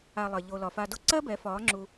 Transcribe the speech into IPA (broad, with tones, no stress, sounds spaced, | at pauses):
a˨ lˠ ɜ˨ ʎ o˨ l ɒ˨ f a˧ d o˦ ǀ ɜ˦ b ɛ˨˦ f ɒː˨˦ ŋ͡ǁ u˧